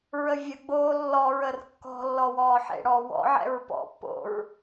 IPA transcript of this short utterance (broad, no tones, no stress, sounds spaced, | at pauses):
ɹ ə vʲ ə ɡ͡b oː lː ɔ ɹ ə r kː ɔ̤ lː ɔ w ɔː ħ ḛ ɽ ɔː w ɔ̰ ʕ ɛ̰ ɹ p ɔ̰ pː o̰ ɹ